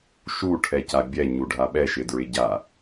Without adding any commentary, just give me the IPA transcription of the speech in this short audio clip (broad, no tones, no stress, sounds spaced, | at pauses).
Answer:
ʃ u ʈʰ ɛ c a bʲ ɛ ɲ u ɖʱ a ɓ ɛ ʃ ɪ d ɹ ɪ ɟ a